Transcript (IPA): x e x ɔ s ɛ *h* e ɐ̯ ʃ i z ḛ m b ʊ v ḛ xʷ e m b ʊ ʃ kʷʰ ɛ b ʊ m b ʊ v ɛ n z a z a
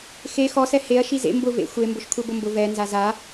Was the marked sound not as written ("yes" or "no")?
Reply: no